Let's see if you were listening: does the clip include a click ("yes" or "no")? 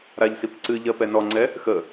yes